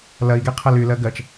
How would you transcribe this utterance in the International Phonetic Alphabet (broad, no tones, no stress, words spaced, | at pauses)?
lɐi̯ɡeqʰɜl ylɜ ɡɜt͡ʃ